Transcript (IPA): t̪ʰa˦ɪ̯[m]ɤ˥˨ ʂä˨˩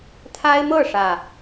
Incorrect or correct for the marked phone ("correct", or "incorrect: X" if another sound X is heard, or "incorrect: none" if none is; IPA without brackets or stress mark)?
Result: correct